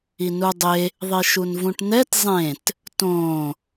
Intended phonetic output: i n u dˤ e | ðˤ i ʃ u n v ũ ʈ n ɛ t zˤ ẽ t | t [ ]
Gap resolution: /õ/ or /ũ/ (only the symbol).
õ